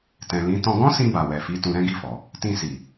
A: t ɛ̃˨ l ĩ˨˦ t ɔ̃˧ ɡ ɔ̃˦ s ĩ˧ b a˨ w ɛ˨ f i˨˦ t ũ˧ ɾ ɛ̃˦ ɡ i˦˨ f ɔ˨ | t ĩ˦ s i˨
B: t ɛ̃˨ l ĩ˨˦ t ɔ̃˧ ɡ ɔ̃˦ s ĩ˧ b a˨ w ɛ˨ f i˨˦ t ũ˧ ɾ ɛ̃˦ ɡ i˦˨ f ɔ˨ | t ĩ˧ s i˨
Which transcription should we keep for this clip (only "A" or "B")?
B